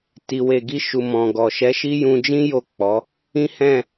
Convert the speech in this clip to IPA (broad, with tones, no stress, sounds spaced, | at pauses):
t i˨ w e˨ ɡ i˧ ʃ u˨ m ɔ̃˨ ɡ ɔ˨ ʃ ɛ˨˦ ʃ i˦ j ũ˧ d͡ʒ ĩ˦ j o˦˨ k͡p ɔ˨˦ | ĩ˦ h ɛ̃˦˨